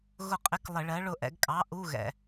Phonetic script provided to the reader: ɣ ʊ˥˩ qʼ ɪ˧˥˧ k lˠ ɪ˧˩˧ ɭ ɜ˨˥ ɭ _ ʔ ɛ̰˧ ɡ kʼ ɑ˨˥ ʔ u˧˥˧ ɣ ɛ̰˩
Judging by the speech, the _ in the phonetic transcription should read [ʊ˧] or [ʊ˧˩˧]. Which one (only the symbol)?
ʊ˧